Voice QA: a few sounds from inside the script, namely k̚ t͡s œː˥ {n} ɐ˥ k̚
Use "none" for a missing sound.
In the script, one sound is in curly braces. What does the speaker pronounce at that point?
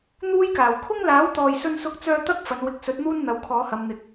t̪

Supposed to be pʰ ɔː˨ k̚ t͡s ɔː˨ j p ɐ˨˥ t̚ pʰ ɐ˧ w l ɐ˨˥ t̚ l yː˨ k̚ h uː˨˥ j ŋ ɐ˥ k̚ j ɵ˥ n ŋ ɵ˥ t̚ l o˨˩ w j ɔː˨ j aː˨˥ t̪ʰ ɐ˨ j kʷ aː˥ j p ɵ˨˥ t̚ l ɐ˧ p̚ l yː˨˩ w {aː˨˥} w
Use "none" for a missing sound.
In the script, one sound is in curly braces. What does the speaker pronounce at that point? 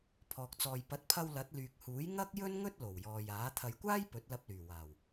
aː˨˩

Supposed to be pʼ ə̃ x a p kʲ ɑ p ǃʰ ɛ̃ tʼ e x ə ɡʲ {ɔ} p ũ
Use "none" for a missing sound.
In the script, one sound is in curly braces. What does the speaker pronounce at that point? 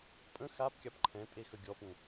ɔ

